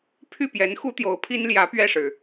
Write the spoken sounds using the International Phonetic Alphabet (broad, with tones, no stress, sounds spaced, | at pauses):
pʰ y˥˩ p j ɛ˧˥ n x u˥ t̪ j o˧˥ ʊ̯ pʰ i˥ n l j ä˧˥ p ɥ ɛ˥˩ ʂ ɻ̩˩